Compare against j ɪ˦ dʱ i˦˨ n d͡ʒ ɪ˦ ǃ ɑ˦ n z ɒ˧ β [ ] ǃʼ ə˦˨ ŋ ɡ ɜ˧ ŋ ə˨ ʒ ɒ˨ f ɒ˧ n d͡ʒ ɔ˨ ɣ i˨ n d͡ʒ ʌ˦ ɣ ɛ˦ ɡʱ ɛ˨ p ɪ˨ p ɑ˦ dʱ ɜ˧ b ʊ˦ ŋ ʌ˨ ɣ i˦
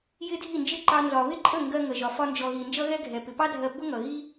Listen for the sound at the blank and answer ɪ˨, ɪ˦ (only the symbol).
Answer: ɪ˦